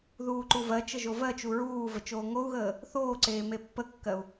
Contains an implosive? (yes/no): no